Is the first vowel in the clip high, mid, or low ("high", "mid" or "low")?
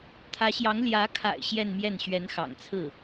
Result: low